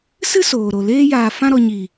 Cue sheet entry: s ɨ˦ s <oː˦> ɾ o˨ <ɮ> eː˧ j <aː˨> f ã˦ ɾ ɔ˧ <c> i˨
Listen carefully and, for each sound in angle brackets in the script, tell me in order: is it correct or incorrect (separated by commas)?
incorrect, incorrect, correct, incorrect